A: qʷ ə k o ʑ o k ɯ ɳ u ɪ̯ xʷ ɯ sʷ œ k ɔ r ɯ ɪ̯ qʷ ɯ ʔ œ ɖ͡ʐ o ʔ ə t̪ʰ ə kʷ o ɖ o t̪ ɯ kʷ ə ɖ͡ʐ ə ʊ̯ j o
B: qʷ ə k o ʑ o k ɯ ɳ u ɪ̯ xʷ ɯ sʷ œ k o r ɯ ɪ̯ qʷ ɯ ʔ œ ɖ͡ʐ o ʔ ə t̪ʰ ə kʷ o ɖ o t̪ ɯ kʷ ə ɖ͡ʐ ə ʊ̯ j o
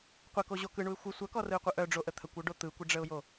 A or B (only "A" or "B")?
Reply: A